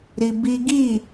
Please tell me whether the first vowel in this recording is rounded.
no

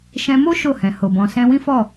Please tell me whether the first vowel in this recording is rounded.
no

